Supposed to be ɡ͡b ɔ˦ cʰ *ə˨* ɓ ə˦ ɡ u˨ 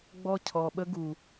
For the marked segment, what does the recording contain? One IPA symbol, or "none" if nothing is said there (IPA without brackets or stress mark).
ɔ˨